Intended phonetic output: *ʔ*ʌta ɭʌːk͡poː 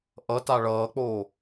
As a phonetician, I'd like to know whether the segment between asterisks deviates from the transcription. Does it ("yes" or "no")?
no